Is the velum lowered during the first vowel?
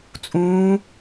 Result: yes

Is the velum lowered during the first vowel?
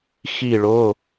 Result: no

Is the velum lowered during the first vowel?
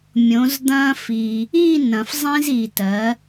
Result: yes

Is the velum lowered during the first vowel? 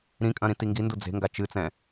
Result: yes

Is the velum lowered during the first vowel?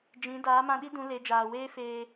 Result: yes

